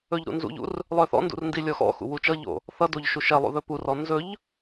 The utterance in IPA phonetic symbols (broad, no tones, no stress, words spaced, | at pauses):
ɵʎɾṵnzṵʎṵr | lˠœθɔ̰ndṵr ndilʲɔxɔ̰xṵ wut͡ʃʌʎo̰ | θʌdoʎ ʃuʃɛlˠṵ ðɵpurɔ nzɵʎ